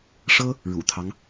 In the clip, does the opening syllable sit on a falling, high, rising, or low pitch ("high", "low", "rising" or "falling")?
high